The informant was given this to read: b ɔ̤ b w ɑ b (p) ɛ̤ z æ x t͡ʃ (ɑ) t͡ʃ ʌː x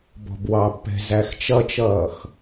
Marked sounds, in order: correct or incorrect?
correct, incorrect: ʌ

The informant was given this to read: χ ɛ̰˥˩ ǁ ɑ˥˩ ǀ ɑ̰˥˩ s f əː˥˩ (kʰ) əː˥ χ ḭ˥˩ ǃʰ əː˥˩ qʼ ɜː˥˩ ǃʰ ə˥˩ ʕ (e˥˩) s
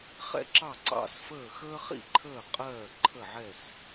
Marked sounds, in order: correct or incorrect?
incorrect: x, incorrect: ɛ˥˩

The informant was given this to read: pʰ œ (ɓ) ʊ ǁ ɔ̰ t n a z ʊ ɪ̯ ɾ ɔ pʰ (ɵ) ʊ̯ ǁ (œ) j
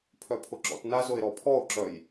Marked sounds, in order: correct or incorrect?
incorrect: pʰ, incorrect: ɔ, correct

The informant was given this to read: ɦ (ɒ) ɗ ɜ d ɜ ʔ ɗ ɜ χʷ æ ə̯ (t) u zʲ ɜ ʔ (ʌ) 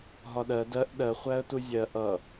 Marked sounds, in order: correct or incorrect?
correct, correct, correct

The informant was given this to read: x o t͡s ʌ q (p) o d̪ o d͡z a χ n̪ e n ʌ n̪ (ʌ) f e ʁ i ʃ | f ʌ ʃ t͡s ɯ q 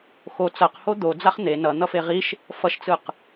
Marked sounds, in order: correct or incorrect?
incorrect: h, correct

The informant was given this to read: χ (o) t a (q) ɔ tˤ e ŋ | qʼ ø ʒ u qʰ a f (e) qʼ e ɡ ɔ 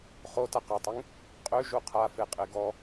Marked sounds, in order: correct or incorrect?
correct, correct, correct

